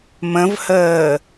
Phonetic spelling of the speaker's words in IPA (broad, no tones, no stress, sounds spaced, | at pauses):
m ə̃ v h əː